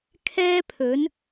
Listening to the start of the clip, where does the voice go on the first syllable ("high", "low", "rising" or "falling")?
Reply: high